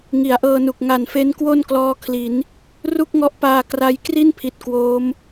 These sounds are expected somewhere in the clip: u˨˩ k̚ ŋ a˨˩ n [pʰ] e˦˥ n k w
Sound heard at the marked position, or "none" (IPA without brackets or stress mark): f